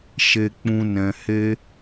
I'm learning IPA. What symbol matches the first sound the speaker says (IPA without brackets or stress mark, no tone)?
ʃ